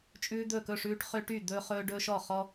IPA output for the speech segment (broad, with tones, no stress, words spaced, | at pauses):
t͡ʃʼʉː˦d̪ɵ˥˨kɵ˥˨ʂʉː˦ʈ χø˦ʈy˥˨d̪ɵː˦χɵː˦ ɖɵː˦ʃɔ˥˨ χɔ˦